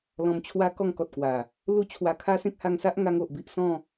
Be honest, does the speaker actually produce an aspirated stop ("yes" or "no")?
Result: yes